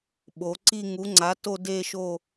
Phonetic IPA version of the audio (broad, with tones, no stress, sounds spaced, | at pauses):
ɓ o˩˧ ǀ i˥˧ ŋ u˨˥ ŋ͡ǀ a˨˥ t o˥˧ d e˥˧ ʃ o˥˧